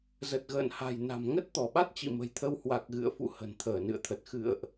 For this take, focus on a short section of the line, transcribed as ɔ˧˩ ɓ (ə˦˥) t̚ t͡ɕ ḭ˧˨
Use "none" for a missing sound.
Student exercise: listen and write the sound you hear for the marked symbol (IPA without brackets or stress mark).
a˦˥